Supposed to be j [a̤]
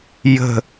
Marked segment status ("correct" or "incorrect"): incorrect